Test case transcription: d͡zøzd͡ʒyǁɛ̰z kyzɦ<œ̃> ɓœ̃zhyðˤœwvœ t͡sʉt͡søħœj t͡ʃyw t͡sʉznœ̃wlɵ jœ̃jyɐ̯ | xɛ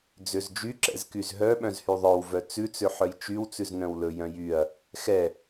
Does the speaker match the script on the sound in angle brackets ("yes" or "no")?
no